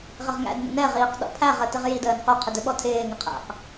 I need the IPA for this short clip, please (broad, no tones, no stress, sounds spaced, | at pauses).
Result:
ʁ ɪ ʁ ŋ æ̰ d n ə̰ n ɛ ʁ iː q ɗ ɔ̰ pʰ æ ʁ ə t ɪ ʁ j i d əː n q ɵ qʰ ɪ d ɵ ɓ ɔ tʰ ɪː ŋ ɪ qʰ æ̰ q